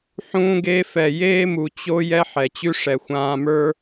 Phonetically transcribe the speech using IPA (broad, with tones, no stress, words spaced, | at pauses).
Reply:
ħũː˧ɡe˧fɛ˨ jeː˦mu˨ t͡ɕo˧ jɛ˦ħɛ˨t͡ɕʉ˦ ʂɛ˨xʷãː˧mə˞˦